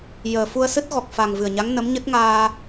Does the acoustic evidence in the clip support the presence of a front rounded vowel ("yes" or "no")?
no